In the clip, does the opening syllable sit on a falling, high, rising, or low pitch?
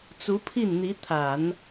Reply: rising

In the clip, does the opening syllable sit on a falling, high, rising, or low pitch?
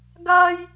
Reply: high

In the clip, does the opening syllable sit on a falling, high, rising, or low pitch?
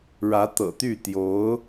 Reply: rising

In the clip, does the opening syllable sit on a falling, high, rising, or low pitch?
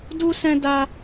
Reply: high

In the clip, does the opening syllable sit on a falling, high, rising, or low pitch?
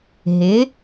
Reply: rising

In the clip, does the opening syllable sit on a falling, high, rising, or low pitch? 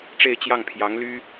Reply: falling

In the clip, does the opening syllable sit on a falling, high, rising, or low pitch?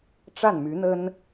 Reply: falling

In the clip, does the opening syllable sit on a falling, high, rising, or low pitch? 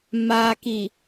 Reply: low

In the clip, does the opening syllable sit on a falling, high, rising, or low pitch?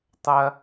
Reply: high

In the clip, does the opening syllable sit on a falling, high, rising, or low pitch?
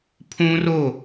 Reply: high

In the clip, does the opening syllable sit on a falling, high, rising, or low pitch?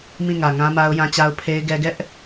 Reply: falling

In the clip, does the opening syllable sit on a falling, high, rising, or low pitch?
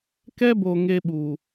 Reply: high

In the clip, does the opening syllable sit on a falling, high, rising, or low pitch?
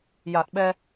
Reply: low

